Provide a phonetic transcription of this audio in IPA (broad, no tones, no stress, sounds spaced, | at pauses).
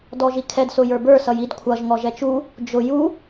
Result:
d ɔ ʒ i kʰ ɛ d s ʊ j ə˞ b ə˞ s ʌ j i d kʷʰ ʌ ʒ ŋ ɔ ʒ ɛ t͡ʃ u | d͡ʒ ʊ j u